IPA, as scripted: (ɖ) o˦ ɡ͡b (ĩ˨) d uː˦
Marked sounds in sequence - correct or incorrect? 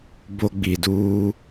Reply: incorrect: b, incorrect: i˨

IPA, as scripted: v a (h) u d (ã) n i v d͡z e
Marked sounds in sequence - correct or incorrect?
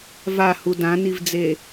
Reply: correct, correct

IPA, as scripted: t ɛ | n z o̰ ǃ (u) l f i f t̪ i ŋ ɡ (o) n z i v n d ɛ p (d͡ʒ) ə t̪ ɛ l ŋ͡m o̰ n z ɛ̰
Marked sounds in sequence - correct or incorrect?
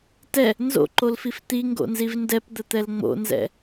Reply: incorrect: o, incorrect: o̰, incorrect: d̪

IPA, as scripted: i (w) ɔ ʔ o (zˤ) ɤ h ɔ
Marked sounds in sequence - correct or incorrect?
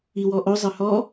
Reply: correct, correct

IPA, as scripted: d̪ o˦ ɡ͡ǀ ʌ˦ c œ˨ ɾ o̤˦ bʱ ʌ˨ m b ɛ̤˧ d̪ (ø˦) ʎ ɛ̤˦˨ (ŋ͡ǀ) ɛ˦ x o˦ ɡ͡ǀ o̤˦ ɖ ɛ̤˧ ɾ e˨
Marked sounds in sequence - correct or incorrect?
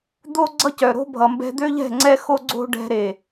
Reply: correct, correct

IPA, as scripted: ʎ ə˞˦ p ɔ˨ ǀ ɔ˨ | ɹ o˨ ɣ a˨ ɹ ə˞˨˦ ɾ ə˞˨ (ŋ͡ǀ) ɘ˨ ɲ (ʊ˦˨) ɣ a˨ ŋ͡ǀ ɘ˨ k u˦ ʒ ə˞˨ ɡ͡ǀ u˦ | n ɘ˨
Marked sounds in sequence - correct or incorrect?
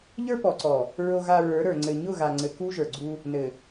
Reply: correct, correct

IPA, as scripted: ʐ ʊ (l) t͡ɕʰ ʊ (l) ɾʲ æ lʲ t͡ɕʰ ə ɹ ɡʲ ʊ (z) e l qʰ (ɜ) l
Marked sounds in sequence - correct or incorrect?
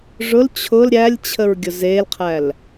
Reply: correct, correct, correct, incorrect: æ

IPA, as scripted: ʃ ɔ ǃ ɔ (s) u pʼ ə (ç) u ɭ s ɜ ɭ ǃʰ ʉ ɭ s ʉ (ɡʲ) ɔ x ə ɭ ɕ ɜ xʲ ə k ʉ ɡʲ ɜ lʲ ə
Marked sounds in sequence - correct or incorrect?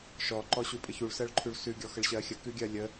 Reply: incorrect: ɕ, correct, correct

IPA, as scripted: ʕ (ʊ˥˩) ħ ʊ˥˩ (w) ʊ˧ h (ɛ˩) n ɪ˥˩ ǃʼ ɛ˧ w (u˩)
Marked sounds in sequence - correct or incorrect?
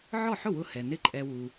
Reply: incorrect: ɔ˥˩, correct, correct, correct

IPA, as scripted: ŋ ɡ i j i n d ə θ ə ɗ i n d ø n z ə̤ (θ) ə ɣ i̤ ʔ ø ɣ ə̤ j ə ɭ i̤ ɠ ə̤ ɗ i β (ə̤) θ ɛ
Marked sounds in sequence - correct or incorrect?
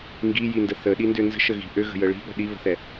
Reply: incorrect: ʃ, correct

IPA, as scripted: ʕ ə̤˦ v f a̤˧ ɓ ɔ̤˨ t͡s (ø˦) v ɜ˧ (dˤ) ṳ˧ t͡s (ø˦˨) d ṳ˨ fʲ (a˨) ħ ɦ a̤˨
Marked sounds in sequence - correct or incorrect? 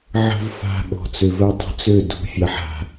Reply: incorrect: ø˨, correct, correct, correct

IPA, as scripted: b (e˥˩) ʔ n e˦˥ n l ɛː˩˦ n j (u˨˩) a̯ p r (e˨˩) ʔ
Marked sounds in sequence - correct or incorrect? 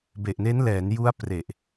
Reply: incorrect: e˨˩, incorrect: u˦˥, correct

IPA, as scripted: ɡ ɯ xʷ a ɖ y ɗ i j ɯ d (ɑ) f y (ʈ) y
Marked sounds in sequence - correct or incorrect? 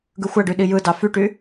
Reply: correct, correct

